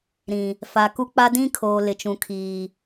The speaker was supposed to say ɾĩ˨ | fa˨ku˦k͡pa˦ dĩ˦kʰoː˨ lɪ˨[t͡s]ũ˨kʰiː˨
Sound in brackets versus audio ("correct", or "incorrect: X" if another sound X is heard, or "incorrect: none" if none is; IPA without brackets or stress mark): incorrect: t͡ʃ